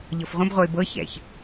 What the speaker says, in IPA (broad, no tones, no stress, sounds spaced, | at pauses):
ʎ ɤ f ʁʷ ə̃ b ʁʷ ɤ ɪ̯ b ɤ ç ɛ̰ ç